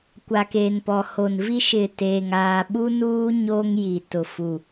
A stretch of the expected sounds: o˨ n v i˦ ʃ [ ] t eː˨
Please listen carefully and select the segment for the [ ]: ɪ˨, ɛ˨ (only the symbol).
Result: ɪ˨